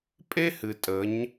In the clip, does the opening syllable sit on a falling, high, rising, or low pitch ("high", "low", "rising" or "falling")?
high